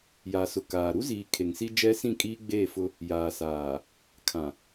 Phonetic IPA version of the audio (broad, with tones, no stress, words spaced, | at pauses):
ja˨sʊ˨ kaː˨ ɾu˦ziː˨ kʰe˨ŋsi˦ d͡ʒɛ˦sĩ˦˨kʼiː˦ ɡ͡beː˦˨fʊ˦ | jaː˨saː˨ | kʰã˨